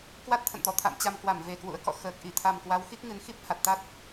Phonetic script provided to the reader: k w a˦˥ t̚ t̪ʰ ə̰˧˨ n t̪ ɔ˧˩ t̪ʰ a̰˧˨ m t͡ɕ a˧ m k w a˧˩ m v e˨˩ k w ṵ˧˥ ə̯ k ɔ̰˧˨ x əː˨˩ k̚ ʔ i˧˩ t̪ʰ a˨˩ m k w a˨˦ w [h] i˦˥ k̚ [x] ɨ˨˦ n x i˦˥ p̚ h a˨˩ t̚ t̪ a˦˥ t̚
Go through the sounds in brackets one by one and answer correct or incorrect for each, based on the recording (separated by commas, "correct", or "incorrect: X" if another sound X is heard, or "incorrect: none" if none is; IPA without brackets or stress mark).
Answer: incorrect: x, incorrect: ŋ